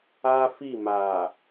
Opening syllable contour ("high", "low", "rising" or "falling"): high